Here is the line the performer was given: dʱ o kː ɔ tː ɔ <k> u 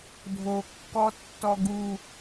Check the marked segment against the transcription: incorrect: ɡ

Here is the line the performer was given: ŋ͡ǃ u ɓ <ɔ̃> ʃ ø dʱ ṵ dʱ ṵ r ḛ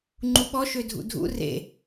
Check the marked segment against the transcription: incorrect: ɔ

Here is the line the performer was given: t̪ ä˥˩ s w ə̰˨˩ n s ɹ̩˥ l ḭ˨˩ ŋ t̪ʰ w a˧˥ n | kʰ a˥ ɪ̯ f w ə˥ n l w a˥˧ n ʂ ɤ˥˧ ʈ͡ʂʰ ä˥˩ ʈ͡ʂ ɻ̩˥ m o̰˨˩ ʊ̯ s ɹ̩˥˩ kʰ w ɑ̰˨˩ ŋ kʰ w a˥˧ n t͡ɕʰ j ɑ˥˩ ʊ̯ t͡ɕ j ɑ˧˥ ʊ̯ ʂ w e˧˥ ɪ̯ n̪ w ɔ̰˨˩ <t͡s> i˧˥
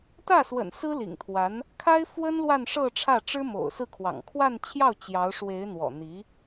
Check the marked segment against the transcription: incorrect: n̪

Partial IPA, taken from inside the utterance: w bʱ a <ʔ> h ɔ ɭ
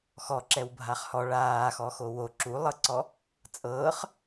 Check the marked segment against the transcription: incorrect: χ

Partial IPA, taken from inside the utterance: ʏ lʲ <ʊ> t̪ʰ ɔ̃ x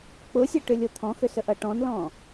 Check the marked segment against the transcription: correct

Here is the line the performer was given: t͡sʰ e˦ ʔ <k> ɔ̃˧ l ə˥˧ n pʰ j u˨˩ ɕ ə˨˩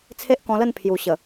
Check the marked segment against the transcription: correct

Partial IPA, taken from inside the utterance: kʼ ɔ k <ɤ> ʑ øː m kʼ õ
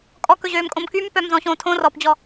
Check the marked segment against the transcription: incorrect: ɵ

